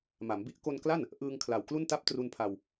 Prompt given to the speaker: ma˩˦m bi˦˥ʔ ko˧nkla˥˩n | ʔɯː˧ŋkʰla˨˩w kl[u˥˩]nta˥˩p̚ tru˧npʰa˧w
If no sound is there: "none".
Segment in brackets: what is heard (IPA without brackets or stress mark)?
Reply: u˥˩